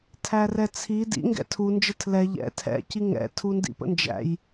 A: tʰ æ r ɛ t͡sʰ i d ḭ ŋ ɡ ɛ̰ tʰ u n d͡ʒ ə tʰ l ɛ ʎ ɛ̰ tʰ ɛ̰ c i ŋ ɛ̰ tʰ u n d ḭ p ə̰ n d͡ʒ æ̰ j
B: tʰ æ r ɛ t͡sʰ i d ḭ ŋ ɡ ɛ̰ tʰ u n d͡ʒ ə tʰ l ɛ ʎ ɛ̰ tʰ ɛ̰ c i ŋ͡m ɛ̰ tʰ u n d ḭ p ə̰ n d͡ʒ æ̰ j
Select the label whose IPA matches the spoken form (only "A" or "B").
A